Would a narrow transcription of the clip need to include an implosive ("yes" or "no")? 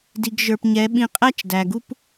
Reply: yes